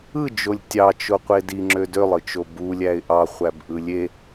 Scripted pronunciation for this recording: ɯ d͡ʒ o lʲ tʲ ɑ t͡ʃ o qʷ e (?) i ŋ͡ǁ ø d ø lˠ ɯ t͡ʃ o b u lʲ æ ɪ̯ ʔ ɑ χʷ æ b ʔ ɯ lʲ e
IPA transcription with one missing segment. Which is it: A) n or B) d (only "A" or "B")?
B